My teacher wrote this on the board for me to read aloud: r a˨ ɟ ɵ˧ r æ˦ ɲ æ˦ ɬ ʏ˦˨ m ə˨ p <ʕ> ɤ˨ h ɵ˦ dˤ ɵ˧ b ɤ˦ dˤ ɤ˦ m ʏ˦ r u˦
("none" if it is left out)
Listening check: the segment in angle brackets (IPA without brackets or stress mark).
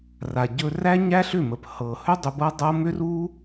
h